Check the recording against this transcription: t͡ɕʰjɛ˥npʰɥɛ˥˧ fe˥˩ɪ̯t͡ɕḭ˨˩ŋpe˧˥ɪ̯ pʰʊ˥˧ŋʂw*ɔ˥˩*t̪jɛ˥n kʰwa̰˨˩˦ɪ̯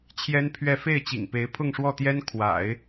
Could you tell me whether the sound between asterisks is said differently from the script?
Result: no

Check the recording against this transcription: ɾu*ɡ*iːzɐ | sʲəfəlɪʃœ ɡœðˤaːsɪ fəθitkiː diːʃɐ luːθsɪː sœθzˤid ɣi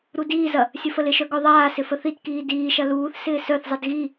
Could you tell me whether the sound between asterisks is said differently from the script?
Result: yes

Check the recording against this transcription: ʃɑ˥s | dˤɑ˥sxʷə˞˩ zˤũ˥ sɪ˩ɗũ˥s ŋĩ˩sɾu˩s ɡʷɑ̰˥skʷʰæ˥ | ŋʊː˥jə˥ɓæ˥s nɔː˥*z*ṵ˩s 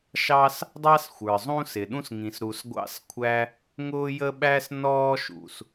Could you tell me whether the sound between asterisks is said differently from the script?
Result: yes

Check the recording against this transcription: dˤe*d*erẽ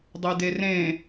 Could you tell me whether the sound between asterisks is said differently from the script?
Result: no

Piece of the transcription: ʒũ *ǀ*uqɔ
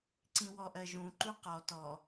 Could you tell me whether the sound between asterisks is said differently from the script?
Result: yes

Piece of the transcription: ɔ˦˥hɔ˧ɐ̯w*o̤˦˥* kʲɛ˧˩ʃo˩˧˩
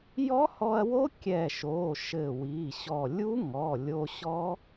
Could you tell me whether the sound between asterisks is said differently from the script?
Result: yes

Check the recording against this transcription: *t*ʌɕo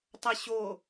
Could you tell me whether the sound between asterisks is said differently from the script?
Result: yes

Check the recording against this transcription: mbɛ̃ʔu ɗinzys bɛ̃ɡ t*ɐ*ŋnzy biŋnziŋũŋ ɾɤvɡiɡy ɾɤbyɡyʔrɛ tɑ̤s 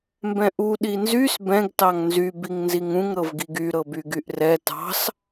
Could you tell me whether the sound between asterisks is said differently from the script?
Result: yes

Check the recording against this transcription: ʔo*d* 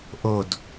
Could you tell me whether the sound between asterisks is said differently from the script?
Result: no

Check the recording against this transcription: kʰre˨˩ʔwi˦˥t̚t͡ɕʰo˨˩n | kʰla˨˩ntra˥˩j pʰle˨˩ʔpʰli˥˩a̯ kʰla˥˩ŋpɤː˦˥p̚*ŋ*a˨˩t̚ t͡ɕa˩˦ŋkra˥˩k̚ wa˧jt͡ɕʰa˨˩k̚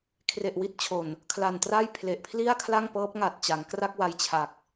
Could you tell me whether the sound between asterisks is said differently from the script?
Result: no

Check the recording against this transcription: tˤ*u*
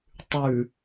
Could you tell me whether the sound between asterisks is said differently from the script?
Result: yes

